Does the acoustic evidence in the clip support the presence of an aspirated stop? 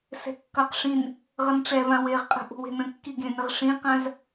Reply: no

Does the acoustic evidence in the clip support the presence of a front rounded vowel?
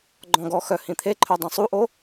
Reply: yes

